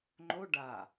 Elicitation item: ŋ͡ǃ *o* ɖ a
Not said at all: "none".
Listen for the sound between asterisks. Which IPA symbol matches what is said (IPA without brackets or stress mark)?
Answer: o